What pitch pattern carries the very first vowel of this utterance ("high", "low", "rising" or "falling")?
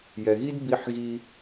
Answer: low